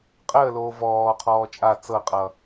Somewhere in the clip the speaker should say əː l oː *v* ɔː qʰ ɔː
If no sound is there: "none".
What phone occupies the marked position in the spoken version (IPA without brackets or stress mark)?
v